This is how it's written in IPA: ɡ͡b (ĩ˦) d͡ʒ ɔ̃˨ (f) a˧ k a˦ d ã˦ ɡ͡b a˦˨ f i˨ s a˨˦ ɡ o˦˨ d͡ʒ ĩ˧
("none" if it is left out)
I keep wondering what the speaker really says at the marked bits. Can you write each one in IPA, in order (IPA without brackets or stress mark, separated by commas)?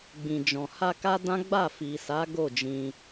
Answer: ĩ˨, h